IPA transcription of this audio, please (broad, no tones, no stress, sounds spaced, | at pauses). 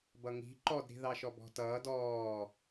b ʌ ŋ i̤ ǃ ɔ d ɾ i̤ ð ɑ ʃ ɔ b ɔ̤ t ʌː d ɔː